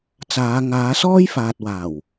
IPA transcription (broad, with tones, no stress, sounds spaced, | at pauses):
t͡s aː˨˧ ŋ aː˨˧ s ɔː˥ j f aː˨ t̚ w aː˨˩ w